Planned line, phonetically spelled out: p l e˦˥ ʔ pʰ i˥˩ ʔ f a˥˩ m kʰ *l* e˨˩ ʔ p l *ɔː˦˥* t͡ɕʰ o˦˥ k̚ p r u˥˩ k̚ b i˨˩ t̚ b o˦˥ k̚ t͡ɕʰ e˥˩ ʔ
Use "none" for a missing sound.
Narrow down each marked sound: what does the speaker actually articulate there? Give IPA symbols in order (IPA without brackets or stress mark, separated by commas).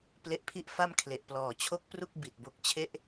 l, ɔː˨˩